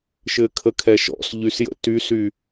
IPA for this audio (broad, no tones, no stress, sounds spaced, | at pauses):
ʃ ɘ kʰ ə kʰ ɛ ʃ ɔ̰ s ʎ y s j ə̰ t y s y